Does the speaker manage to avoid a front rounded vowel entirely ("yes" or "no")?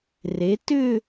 no